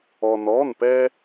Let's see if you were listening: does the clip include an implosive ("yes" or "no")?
no